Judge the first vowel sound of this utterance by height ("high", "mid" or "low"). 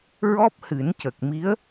mid